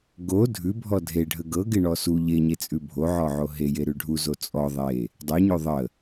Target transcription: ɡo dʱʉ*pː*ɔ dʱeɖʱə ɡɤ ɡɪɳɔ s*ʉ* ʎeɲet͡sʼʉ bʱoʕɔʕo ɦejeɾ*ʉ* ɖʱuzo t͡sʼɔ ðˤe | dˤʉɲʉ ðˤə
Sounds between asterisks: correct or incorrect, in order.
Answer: incorrect: bʱ, incorrect: u, correct

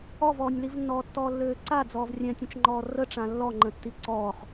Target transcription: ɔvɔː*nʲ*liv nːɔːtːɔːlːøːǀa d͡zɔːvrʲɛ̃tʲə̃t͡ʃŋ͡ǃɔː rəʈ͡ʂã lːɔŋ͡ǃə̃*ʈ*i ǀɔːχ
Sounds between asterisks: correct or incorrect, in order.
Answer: correct, incorrect: tː

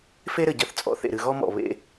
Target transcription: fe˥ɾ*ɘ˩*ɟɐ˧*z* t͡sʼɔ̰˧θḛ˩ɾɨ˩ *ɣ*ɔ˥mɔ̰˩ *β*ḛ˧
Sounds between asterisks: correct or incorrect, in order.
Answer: correct, incorrect: θ, correct, correct

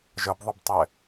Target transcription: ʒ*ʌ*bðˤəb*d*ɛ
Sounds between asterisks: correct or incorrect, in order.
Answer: correct, incorrect: tˤ

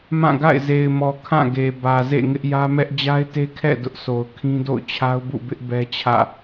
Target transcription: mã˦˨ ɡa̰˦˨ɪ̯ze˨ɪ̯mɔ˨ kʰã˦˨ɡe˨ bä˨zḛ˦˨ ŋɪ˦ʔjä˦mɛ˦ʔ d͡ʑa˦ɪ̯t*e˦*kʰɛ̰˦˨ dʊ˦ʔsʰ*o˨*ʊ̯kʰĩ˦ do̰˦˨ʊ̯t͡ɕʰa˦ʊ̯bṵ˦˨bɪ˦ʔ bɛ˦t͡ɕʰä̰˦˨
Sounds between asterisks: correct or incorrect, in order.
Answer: correct, correct

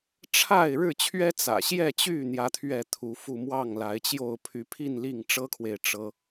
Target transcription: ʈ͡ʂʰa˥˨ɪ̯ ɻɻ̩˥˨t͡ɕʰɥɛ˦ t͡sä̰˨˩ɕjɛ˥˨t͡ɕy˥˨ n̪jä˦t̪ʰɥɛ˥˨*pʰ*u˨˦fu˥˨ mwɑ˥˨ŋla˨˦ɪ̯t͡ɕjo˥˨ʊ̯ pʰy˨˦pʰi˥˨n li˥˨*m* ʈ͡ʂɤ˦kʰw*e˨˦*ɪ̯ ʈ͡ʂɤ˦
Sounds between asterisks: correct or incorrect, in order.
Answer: incorrect: t̪ʰ, incorrect: ŋ, incorrect: e˨

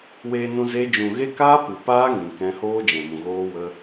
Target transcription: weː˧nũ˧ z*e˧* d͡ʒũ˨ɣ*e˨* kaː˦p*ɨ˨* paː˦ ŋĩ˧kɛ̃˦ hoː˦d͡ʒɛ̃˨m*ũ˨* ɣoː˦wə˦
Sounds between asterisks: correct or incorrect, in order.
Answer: incorrect: e˦, incorrect: e˦, correct, correct

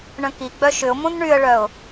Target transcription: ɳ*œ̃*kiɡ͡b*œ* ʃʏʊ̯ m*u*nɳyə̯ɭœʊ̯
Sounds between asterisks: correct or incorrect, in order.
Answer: correct, correct, incorrect: ũ

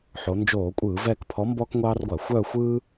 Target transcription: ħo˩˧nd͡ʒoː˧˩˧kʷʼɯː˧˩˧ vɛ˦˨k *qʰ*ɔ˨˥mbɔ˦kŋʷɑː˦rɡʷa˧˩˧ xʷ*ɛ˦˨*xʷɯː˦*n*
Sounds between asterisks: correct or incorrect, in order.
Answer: incorrect: pʰ, incorrect: œ˦˨, incorrect: none

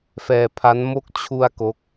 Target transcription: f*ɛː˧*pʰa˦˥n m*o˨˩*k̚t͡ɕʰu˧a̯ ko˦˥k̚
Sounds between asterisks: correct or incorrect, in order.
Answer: correct, incorrect: o˦˥

